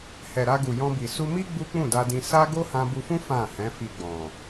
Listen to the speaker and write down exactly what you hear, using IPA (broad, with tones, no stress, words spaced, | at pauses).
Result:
hɛ˨ɾa˧ ɡu˨jɔ̃˧bi˨ su˧mi˦ ɡ͡bu˦k͡pũ˦˨da˧dĩ˧ sa˦ ɡo˦hã˧bu˧fũ˦ fã˦˨hɛ̃˨˦ fi˧ɡ͡bɔ̃˨